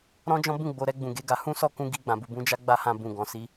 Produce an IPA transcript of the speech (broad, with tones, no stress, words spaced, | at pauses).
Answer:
ɾɔ̃˦d͡ʒɔ̃˦bũ˦˨ ɡ͡bo˨ɾɛ˧ ɡ͡bũ˨ɡe˨˦ɡa˧ hũ˦sɔ˦˨kũ˧ ɡi˧ɡ͡bã˨ bu˨bũ˧d͡ʒa˦ɡ͡ba˦˨ hã˧bũ˨ ɡɔ̃˨si˧